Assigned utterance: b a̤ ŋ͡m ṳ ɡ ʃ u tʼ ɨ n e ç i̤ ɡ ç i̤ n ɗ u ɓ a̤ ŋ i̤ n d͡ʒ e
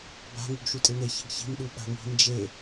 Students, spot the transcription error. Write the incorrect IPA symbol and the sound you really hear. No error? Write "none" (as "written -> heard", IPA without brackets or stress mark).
ŋ͡m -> ŋ